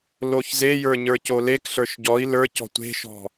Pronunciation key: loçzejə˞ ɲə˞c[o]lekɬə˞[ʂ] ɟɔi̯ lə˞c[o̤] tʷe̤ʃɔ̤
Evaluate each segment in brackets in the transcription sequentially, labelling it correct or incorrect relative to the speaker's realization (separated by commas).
correct, incorrect, incorrect